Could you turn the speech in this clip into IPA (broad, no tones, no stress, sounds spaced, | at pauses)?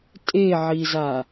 tʼ e ʕ i z a